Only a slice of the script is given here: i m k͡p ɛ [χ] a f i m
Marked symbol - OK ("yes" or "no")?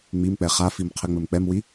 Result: yes